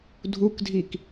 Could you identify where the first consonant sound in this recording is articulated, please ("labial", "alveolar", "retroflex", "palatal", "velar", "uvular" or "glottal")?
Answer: alveolar